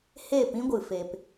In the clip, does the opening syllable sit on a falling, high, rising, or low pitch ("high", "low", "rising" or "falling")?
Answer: falling